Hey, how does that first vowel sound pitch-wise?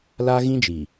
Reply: high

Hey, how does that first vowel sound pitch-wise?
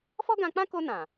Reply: high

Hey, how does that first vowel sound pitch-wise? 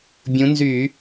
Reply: rising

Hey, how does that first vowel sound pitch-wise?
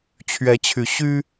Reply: rising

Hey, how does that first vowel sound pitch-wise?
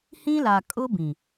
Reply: high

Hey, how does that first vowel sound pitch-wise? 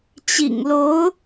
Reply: low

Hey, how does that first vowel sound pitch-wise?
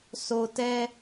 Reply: low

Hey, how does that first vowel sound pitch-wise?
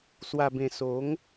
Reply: low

